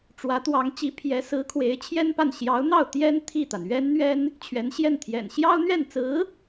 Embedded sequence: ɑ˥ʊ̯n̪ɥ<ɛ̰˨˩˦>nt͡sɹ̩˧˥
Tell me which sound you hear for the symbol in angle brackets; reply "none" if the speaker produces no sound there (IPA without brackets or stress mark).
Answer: ɛ˥˩